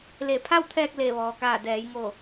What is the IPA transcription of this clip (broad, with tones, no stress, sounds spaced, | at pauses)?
l e˧˩ pʰ a˥˨ w t̪ʰ ɛː˧ k̚ l e˧˩ ʋ ɔː˩ k aː˧˩ d ɛː˩˧ j ŋ o˧˩